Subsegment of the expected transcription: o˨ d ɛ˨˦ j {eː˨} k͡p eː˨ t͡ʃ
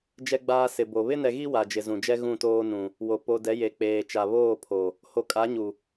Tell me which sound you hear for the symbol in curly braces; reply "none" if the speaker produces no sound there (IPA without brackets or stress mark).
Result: e˨